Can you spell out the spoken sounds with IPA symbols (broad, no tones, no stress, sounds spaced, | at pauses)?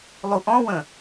lˠ u ʔ ɔ̃ w ə̃